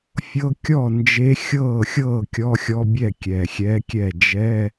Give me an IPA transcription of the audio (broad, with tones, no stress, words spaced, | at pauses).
fʲɤ˧˥˧ kʲɔ˥˩ nd͡ʒe˧˥ xʲɤː˥˩xʲɤː˥˩ kʲɔ˧˥˧xʲɔ˧˥˧bʲɛ˥˩ kʲɛ˨˩xʲɛ˧˥kʲɛ˥˩ d͡ʒɛ˧˥˧